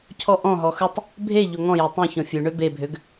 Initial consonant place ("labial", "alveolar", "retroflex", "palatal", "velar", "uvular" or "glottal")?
palatal